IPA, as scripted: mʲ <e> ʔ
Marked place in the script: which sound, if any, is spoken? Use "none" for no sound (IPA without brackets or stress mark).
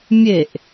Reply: e